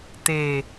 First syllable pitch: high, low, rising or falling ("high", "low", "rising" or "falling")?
low